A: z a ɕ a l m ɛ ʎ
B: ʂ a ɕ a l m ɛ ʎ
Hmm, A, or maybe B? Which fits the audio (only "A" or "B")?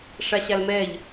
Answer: B